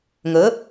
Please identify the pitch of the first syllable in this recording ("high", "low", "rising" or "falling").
rising